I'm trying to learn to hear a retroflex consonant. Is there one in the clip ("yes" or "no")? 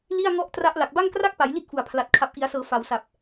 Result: no